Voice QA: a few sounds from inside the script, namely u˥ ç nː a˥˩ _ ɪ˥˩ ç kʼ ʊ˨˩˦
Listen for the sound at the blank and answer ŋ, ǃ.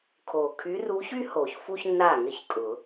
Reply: ŋ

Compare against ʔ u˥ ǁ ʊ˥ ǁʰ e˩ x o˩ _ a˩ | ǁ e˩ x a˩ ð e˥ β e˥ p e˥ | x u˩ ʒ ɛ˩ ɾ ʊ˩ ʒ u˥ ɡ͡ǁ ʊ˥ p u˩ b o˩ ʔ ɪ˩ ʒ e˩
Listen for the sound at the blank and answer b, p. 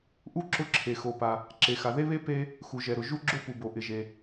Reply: p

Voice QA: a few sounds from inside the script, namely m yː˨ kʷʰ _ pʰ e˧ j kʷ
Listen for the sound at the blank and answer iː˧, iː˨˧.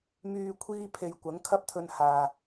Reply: iː˧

